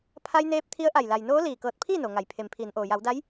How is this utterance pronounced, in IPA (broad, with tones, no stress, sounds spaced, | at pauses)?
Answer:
pʰ a˧ j n eː˧ p̚ t̪ʰ i˧˥ ə̯ ʔ a˧˩ j l a˩ j n oː˧˥ l iː˧˩ k ɤː˧˩ t̚ pʰ iː˥˨ n o˩ ŋ a˩˧ j pʰ e˩ m pʰ iː˩˧ n ʔ oː˩ j a˩˧ w d a˧˥ j